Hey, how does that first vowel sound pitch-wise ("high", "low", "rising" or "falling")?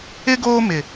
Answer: high